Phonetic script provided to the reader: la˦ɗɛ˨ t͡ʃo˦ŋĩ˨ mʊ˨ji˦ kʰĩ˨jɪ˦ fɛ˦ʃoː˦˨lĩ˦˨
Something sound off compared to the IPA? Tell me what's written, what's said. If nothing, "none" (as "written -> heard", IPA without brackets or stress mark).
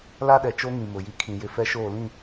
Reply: none